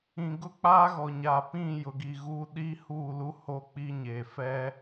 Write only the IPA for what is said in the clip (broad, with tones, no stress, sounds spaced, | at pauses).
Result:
ĩ˨ ɡ ʊ˦ k͡p a˦ ɣ ɔ˨ ɲ a˨ p ĩ˦˨ j ʊ˨ ɡ i˨ ɣ u˦ ɗ i˦ h uː˦˨ l u˦ h o˦ k͡p i˦ ɲ e˨ f ɛ˦